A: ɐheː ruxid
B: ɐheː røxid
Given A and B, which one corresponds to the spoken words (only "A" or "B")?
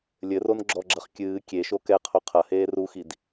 A